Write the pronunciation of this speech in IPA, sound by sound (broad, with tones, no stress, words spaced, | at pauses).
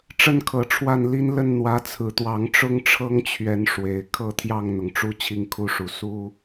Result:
ʈ͡ʂə˦nkʰɤ˨˩ʈ͡ʂʰwa˥˨nli˦n lə˥˨nn̪wä˨˦t͡sʰɹ̩˨˩t̪wɑ˨˦ŋ ʈ͡ʂʊ˦ŋʈ͡ʂʰɤ˦ŋt͡ɕʰɥɛ˨˦n ʂwe˨˩ɪ̯ kʰɤ˥˨t̪ʰjɑ˥˨ŋn̪ʊ˩ŋʈ͡ʂu˦ t͡ɕʰi˥˨ŋkʰu˦ʂu˨˩ su˦